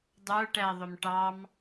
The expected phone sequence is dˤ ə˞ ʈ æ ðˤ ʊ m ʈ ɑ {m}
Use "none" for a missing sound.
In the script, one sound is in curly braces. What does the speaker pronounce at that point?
m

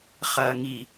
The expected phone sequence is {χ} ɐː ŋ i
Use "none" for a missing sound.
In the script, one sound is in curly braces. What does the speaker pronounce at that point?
χ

